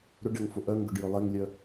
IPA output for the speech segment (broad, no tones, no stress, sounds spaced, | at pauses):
ɾ ʊ ɖ ɛ ŋ f ʊ ʔ œ ŋ ɡ ʊ ɖ j ɵ lˠ e ŋ lʲ œ